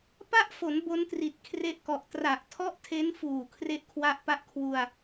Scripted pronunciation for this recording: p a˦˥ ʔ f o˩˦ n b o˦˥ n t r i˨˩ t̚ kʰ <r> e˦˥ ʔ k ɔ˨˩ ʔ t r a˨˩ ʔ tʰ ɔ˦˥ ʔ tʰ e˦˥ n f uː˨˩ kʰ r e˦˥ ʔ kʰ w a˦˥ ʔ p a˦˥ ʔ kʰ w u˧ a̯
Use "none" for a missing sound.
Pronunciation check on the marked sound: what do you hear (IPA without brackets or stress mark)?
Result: r